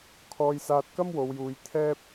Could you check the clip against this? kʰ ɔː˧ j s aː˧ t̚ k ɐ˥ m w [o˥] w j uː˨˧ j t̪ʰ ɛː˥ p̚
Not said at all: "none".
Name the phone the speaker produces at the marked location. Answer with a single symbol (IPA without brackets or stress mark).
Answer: o˨˧